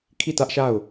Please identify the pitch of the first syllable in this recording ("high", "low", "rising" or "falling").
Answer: falling